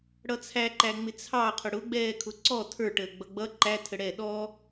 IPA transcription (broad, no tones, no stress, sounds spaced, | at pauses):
ɽ ʌ t͡sʰ æ ǃ æ ŋ͡m ɪ t͡sʰ ɑ qʰ ʊ ɽ ʊ ɡ͡b ɛː kʰ ʊ ǀ ɔ tʰ ə˞ ʈ əː ɡ͡b ʌ ɡ͡b ʌ ǃ æ tʰ ə ɽ ɛ ɗ ɔ